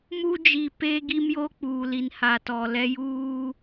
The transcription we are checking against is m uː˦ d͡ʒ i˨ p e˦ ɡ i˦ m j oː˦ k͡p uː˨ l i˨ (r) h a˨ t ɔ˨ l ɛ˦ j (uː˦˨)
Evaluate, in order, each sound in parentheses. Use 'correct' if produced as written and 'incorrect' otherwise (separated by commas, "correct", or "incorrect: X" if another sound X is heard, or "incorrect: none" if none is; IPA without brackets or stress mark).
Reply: incorrect: n, incorrect: uː˦